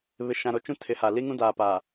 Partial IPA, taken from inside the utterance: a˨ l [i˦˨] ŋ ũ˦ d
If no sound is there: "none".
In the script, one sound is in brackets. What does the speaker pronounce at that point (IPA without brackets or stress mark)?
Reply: i˦